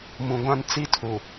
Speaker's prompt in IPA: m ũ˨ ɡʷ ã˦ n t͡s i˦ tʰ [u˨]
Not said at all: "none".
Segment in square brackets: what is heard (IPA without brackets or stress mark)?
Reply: u˨